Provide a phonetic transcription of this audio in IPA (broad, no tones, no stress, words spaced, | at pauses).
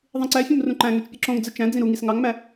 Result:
ðˤĩǀæfʲõm rũǃæ̃ŋøt͡ʃ pʲɯǁõŋd͡zɯ t͡ʃæ̃ d͡zĩɾuŋis ŋɑŋmæ